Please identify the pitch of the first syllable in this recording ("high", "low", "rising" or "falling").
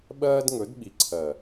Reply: high